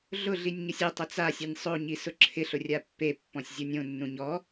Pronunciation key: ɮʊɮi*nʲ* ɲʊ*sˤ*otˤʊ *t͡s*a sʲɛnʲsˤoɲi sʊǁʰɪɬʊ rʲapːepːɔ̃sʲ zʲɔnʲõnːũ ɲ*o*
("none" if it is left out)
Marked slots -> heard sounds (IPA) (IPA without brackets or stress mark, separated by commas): nʲ, sʲ, t͡s, ɔ